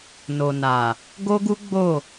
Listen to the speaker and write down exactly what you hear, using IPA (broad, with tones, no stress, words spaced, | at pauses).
no˨na˨ | ɡo˦ɡu˦ ɡ͡bo˦˨